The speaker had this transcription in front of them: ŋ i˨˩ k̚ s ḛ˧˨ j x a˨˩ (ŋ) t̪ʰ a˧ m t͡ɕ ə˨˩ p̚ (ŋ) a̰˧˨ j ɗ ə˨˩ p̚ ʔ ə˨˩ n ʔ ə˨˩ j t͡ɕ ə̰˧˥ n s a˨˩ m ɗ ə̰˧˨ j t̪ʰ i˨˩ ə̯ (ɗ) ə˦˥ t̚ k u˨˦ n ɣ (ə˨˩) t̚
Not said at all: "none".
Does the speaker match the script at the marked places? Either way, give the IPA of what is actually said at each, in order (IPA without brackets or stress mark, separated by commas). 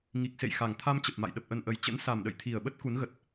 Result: ŋ, m, ɓ, ə˨˩